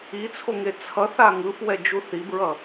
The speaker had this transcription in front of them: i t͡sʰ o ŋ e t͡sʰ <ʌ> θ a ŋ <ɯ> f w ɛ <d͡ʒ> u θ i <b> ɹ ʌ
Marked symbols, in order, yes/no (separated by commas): yes, yes, yes, yes